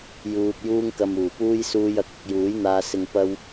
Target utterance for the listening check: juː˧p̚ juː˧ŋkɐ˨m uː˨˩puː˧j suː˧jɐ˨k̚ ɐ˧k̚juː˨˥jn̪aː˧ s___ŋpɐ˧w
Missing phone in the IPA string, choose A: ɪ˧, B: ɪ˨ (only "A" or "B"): B